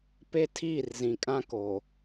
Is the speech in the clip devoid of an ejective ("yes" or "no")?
no